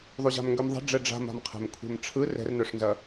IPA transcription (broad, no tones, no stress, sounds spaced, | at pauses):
ðˤ u ʑ a̤ m ŋ ɡ ø m ðˤ a̤ ɖ͡ʐ ɛ ɖ͡ʐ a̤ m a̤ m qʰ ɛ̤ m kʷʰ ɛ̤ m ʈ͡ʂʰ ɯ r ɛ̤ r n œ ʂ n z ɐ